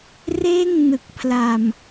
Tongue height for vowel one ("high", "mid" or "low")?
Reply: mid